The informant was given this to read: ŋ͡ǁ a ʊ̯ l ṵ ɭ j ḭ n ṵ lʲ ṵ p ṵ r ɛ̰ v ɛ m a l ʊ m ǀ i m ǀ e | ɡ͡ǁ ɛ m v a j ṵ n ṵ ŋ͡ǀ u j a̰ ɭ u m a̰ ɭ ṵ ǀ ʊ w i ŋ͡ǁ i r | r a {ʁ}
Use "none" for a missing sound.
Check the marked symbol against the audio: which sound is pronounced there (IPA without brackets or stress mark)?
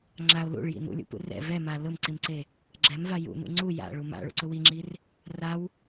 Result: w